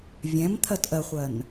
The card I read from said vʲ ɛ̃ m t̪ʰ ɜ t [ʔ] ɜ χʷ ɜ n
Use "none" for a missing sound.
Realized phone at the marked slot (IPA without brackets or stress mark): ʔ